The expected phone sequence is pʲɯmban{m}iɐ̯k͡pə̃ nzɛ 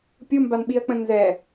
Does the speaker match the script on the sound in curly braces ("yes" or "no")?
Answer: no